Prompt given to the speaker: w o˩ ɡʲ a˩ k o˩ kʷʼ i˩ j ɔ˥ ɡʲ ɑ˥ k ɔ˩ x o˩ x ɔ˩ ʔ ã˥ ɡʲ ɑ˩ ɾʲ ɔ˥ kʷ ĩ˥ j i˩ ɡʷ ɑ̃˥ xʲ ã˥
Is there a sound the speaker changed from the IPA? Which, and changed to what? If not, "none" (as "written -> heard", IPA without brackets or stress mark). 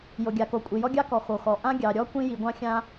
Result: w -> j